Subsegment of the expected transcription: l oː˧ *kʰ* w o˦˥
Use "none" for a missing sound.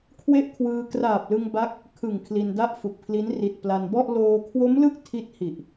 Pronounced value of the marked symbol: kʰ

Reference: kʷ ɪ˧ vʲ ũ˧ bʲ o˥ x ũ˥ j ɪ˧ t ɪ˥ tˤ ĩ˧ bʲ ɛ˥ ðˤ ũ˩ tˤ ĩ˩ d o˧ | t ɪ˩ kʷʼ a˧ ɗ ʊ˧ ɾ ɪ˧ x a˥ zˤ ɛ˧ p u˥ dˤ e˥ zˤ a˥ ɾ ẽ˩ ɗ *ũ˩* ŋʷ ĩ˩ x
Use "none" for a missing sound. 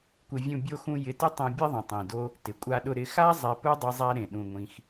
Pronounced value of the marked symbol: ũ˩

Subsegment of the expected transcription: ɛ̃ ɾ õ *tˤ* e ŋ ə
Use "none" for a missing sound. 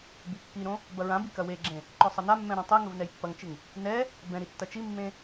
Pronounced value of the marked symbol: tˤ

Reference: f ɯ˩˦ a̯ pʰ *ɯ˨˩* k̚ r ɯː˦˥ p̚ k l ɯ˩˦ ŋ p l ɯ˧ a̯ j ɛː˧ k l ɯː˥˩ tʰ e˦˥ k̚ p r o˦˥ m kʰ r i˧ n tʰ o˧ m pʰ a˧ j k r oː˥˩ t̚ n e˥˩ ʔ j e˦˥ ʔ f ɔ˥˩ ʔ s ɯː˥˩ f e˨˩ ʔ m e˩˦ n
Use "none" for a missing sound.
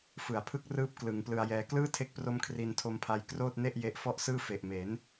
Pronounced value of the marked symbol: ɯ˦˥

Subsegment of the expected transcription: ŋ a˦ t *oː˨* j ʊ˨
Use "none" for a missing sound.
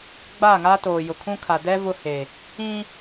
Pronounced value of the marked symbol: oː˨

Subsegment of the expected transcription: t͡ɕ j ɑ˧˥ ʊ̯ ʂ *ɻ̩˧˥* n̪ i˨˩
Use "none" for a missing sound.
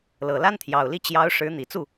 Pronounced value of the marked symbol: ɻ̩˧˥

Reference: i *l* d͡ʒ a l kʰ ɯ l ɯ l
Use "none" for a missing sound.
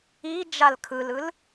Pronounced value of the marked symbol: none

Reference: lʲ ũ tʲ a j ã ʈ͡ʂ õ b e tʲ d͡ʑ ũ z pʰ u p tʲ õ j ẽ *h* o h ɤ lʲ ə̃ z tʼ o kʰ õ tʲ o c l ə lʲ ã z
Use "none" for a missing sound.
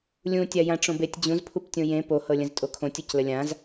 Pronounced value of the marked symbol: p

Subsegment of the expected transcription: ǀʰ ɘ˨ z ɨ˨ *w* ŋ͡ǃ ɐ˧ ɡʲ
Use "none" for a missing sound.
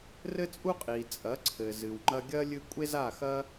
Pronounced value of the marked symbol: w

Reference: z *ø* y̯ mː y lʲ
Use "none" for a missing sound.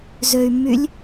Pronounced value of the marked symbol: ø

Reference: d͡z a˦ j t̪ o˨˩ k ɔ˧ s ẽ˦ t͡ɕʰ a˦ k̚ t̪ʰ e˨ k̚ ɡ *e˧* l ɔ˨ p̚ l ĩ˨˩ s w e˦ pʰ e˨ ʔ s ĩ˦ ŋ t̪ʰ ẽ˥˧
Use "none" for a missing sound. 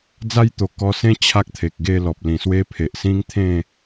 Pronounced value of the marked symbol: e˥˧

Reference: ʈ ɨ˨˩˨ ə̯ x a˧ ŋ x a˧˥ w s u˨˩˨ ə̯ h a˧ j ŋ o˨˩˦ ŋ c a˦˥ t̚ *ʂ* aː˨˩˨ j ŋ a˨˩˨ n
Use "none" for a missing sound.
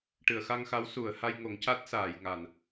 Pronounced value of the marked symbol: s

